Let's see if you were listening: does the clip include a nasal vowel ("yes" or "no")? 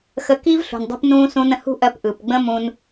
yes